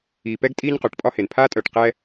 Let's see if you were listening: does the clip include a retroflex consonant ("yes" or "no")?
yes